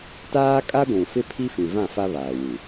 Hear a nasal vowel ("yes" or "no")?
yes